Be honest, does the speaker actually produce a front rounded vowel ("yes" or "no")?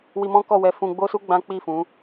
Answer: no